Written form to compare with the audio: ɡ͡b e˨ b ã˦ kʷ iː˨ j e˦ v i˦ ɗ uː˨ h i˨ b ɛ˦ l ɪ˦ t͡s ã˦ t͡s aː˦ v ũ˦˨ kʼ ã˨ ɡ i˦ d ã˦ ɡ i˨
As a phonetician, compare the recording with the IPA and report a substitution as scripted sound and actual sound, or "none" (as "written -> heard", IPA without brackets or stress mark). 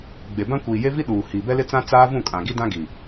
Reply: none